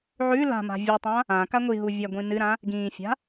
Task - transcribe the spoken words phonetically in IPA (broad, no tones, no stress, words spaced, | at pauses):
ʕʉ la̤ma̤ vʲʉtˤã | ã kaŋʷiɦu vʲaɡʷĩnɨɾã | ɡĩːfʲa̤